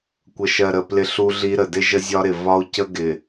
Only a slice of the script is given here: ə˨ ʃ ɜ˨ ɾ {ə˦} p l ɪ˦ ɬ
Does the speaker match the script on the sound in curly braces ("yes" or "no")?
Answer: no